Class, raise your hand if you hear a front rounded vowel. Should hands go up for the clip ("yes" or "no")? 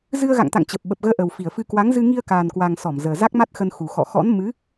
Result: no